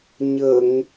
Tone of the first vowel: low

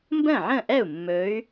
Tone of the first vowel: falling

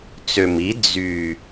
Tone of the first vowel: low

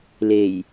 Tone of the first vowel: low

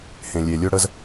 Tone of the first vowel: low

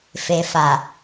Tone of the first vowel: low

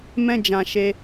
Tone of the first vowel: high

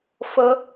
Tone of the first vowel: high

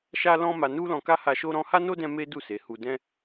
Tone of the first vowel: high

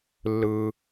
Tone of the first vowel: high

